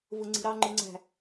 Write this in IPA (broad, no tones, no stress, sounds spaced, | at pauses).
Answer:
v ɯ ŋ͡ǀ i̤ ɾ ɑ ŋ͡ǃ ɯ ŋ͡ǀ æ̤